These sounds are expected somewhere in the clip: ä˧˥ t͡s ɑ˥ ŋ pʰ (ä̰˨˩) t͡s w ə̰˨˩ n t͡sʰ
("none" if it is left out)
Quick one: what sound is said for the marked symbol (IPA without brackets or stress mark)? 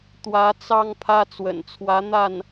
ä˥